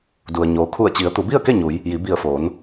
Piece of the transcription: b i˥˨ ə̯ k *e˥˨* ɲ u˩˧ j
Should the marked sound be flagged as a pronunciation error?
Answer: no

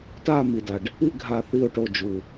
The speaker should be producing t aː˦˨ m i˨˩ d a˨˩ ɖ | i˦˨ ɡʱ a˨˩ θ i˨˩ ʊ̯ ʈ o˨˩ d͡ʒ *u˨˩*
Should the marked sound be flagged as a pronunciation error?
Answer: no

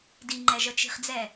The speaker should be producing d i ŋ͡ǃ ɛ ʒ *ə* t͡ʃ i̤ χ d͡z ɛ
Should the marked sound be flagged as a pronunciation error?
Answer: no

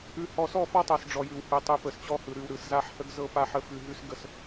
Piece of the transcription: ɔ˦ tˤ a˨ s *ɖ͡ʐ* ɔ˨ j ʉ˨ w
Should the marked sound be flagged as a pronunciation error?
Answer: no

